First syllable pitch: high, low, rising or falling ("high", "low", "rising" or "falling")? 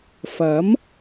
rising